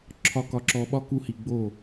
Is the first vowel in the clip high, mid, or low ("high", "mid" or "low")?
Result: low